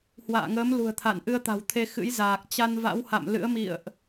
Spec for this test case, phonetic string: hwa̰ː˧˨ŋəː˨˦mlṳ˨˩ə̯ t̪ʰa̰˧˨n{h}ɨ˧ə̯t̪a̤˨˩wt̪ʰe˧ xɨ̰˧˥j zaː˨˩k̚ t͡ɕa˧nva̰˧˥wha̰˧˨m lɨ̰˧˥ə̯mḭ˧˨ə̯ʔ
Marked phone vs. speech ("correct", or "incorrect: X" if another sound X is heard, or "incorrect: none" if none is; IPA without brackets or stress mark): incorrect: ʔ